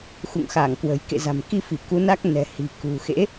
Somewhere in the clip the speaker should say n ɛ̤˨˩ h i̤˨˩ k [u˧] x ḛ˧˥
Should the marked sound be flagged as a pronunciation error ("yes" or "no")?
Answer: yes